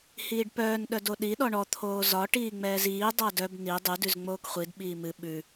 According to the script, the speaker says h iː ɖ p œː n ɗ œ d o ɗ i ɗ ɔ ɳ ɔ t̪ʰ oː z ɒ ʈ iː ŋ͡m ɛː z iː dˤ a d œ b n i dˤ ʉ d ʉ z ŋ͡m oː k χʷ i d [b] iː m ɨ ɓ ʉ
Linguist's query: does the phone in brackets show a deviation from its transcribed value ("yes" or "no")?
yes